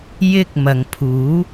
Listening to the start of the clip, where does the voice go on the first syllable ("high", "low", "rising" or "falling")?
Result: high